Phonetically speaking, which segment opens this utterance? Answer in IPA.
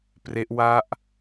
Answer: p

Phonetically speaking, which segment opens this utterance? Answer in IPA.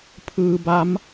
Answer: pʰ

